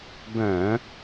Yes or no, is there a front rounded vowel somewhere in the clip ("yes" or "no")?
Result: yes